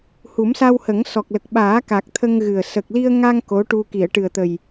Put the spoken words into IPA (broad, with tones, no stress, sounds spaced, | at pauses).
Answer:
h u˨˩˦ m s a˧ w h ə˨˩˦ ŋ s ɔ˨˩ k̚ l ə˨˩ k̚ ɓ aː˨˩˦ k a˨˩ k̚ t̪ʰ ə˧ ŋ ɣ ɨ˨˩ ə̯ s ə˨˩ k̚ l i˧ ə̯ ŋ a˧ ŋ k o˧˥ ʈ u˧ k i˨˩˨ ə̯ ʈ ɨ˨˩ ə̯ t̪ ə˨˩ j